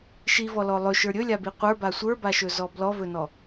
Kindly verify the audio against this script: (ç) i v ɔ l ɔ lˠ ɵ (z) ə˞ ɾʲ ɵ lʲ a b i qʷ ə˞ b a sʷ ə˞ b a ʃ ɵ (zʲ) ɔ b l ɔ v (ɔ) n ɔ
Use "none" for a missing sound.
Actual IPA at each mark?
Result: ʃ, ʃ, z, ɵ

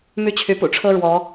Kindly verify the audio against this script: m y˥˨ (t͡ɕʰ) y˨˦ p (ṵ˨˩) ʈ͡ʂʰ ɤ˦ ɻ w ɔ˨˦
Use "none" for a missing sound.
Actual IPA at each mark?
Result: t͡ɕʰ, ṵ˨˩

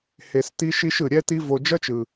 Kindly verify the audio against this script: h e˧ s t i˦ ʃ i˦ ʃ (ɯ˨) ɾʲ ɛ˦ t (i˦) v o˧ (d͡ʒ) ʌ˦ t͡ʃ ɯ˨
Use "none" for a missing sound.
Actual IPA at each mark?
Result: ɯ˨, i˦, d͡ʒ

